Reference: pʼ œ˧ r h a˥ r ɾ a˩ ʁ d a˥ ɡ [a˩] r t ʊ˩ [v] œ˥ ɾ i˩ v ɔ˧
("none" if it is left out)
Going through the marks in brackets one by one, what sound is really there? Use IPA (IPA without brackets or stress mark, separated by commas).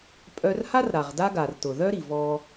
a˩, ð